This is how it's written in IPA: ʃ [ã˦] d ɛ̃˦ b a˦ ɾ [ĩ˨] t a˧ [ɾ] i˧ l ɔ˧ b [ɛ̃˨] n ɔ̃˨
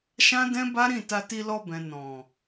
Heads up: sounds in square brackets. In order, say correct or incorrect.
correct, incorrect, incorrect, correct

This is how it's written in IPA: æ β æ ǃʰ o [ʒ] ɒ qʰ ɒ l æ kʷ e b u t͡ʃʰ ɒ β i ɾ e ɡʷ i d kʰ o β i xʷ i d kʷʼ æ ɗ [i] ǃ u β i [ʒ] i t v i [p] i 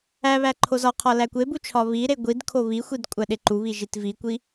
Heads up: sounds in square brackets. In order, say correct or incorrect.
incorrect, incorrect, correct, incorrect

